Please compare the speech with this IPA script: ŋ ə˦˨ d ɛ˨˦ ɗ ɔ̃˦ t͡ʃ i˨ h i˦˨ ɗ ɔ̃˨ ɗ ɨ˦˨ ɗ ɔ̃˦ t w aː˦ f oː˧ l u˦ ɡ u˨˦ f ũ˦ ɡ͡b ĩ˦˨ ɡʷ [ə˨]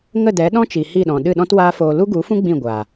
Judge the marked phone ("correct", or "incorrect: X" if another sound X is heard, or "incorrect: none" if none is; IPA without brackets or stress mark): incorrect: a˨